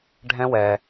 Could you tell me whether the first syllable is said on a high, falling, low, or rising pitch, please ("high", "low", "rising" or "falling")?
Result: high